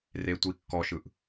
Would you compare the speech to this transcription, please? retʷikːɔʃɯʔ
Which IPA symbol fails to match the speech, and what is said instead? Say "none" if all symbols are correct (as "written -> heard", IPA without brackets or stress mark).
none